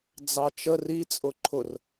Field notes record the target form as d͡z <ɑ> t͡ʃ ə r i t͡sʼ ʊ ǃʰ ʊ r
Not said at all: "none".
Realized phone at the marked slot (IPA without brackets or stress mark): ɑ